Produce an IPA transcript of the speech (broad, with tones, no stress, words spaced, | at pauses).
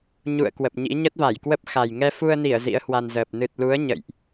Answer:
ɲṵ˧˨ə̯ kwə˨˩p̚ɲḭ˧˥ ɲə˦˥t̚va˧˩jkwə˦˥p̚ xa˨˩j ŋɛ˧fu˧ə̯ni˧˩ə̯ zḭ˧˥ə̯hwa˧nzəː˨˩p̚ nɨ˨˩t̚lu˨˦ə̯ ɲə̰˧˨jʔ